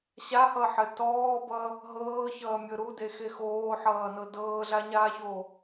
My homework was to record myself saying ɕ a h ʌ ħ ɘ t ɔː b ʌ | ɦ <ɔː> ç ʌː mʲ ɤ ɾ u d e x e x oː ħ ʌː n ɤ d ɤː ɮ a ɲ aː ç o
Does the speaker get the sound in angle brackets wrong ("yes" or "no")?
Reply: yes